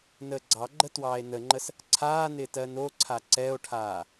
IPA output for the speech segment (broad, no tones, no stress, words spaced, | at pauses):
nəːɡ͡ǀɑɡ͡ǃə twɑːe̯nəŋ͡ǃəs | ǀʰaːnɪːt ɜnoǀʰa ǀɛo̯ʈʰaː